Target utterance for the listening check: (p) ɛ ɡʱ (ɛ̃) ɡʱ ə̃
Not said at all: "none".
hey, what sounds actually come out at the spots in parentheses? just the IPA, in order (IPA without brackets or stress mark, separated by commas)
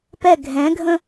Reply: p, ɛ̃